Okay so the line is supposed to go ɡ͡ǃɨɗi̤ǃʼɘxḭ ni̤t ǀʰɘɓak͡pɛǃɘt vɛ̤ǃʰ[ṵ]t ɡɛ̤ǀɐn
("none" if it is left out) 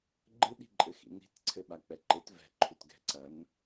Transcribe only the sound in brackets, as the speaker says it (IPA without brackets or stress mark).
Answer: u